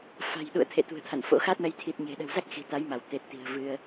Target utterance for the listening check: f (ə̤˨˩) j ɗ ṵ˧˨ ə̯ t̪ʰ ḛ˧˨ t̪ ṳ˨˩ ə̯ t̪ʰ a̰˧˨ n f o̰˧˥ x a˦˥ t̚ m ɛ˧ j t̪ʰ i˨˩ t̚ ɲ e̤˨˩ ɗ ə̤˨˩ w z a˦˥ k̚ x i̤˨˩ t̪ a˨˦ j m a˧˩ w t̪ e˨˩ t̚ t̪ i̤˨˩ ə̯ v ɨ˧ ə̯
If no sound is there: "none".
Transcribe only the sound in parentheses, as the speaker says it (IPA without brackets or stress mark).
a̤˨˩